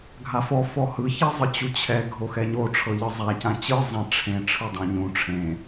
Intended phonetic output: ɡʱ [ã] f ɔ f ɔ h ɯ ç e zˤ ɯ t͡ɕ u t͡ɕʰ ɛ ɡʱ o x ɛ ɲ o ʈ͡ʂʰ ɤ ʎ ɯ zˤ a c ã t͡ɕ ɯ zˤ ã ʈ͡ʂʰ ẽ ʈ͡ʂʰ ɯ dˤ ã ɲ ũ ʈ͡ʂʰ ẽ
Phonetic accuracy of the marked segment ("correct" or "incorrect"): incorrect